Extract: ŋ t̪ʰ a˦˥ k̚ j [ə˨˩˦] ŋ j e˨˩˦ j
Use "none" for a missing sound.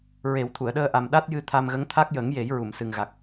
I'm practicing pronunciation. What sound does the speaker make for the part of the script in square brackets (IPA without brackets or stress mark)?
ə˨˩˦